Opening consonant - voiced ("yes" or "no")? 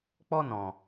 no